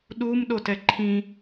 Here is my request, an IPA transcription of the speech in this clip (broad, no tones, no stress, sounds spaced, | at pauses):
ɗ u m ɗ o t ɛ ǃʰ ĩ